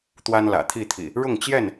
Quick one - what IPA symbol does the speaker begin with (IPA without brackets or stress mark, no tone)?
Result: t̪